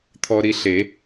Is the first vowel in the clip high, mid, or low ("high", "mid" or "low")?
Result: mid